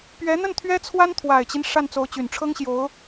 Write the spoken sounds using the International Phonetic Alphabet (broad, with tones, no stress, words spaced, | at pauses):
pɥɛ˧˥n̪ə˥˩n t̪ʰɥɛ˥t͡sʰwa˥nt̪ʰwa˨˩ɪ̯t͡ɕi˦n ʂa˥˩nt͡so˧˥ʊ̯t͡ɕy˨˩n ʈ͡ʂʰɤ˥ŋɕjo˧˥ʊ̯